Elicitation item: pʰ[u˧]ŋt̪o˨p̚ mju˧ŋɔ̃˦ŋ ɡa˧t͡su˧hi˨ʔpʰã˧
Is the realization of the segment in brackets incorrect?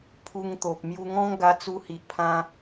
no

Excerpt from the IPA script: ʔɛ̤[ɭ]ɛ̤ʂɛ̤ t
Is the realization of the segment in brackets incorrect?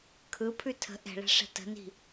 no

